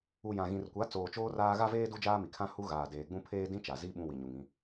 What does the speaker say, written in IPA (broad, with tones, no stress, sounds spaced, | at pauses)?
u˨ j ã˨ ɣ ĩ˨ r kʷ a˨˦ t͡s oː˨ t͡ʃ oː˦ r aː˦ ɣ a˦ v eː˦ d u˦ d͡ʒ aː˦ m i˨ kʰ ã˦ h u˦ ɣ aː˨ d eː˨ ɡ͡b ũ˦ pʰ eː˦ d ĩ˦ t͡ʃ a˨ z i˦ ɓ ũ˦ w i˨ ɲ u˨ ŋ ĩ˦